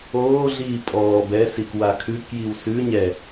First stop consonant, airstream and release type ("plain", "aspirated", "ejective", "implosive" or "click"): ejective